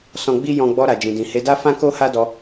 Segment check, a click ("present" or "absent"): absent